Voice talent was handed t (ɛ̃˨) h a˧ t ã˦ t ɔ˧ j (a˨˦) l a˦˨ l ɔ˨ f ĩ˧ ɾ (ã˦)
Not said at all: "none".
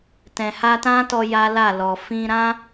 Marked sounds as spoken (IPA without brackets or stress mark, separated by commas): ɛ̃˨, a˦, ã˦